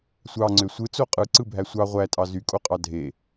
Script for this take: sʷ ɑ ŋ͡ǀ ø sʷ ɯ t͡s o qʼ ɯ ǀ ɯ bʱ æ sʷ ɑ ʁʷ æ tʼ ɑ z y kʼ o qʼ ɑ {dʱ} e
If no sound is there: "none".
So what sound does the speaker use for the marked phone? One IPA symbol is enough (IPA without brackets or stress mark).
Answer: dʱ